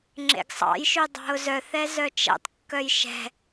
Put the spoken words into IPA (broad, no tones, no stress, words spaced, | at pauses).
ŋ͡ǁḛɡsˤɑ̰jʃy dˤɑ̤ʊ̯zœθɛ zœt͡ʃɛ̰tˤkːœj ʃɛ̤